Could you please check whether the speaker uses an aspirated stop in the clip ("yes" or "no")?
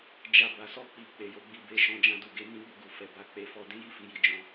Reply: no